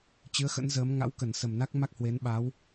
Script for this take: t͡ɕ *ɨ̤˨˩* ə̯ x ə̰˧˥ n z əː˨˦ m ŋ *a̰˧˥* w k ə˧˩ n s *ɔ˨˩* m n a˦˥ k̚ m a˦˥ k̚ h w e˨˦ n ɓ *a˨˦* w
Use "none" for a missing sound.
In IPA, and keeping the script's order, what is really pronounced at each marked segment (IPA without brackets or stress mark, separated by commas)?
ɨ˨˦, a̰˧˥, ə˨˩, a˨˦